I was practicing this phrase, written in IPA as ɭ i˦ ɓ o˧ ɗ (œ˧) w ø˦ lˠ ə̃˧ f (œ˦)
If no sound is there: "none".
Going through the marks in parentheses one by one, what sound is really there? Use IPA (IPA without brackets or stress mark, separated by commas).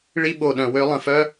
œ̃˧, œ˦